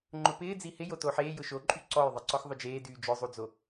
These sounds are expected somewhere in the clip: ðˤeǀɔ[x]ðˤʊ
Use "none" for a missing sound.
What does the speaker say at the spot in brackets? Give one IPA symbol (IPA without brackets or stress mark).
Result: x